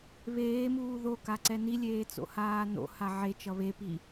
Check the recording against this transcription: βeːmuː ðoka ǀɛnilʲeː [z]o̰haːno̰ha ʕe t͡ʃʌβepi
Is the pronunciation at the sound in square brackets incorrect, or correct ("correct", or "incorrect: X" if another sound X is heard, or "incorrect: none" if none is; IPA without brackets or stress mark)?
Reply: incorrect: t͡s